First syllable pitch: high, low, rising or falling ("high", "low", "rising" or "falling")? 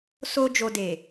high